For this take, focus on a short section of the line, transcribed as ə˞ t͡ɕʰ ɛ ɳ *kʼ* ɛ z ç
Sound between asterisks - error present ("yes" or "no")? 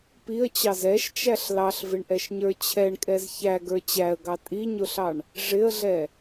no